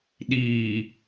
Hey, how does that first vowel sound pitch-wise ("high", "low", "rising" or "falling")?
low